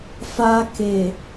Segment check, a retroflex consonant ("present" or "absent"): absent